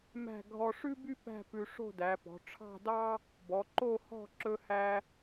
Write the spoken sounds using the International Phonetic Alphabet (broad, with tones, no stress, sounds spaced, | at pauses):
m æ̤˥˧ ɡʱ ɔ˧ ʂ ʉ˥ b y˥ p æ̤˥˧ p ʉ˧ ʂ o̤˥˧ d æ˩˧ p ɔ̤˩˧ ʈ͡ʂʰ ɑ̤˥˧ d ɑ˥ | b ɔ˩˧ ǃ o˥˧ h ɔ̤˥˧ ǁ ɵ˧ h æ˧